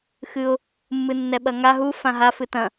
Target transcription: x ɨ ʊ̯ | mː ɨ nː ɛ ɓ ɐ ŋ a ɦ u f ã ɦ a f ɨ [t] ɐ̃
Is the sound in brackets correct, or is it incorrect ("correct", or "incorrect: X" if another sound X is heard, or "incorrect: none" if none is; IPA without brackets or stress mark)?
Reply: correct